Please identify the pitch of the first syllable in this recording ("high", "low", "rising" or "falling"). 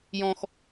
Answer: high